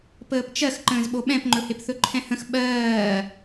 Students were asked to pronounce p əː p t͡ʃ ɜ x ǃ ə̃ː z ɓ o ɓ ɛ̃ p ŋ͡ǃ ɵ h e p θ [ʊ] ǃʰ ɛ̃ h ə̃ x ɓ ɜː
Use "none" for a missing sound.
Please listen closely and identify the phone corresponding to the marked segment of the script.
ɵ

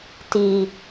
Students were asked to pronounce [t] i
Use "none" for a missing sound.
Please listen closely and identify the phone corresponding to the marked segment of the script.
t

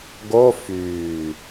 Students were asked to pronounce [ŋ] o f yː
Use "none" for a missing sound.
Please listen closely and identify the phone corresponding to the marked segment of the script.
ɡ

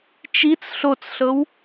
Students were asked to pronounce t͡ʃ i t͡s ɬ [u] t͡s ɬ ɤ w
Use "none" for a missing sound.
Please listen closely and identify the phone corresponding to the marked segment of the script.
o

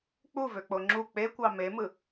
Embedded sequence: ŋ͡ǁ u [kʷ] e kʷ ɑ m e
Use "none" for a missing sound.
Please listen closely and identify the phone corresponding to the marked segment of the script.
k͡p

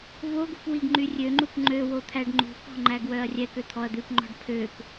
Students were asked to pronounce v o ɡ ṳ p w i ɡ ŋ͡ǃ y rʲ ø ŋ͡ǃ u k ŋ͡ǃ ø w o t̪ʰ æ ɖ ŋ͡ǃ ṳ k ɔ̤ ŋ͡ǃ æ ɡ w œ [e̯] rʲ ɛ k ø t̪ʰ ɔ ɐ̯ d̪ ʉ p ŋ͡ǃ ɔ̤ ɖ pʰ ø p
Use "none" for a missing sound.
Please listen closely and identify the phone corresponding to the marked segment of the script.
ɐ̯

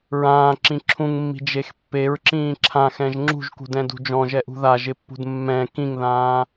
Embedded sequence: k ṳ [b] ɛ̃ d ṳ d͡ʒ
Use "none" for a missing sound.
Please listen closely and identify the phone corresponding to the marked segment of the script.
d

